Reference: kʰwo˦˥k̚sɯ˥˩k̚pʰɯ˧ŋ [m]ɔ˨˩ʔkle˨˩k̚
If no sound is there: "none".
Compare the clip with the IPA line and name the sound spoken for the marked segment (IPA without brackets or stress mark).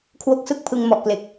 m